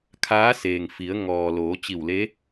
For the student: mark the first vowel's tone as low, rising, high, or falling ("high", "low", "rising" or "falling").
rising